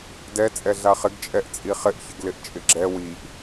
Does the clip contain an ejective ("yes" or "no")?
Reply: yes